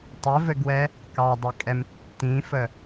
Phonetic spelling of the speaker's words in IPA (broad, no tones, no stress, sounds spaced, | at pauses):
tˤ ɘ v ɘ ɡ w ɛ | k ɑ dˤ ɘ kʼ ɛ m tː ĩ f ə